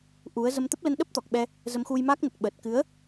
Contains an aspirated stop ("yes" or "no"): no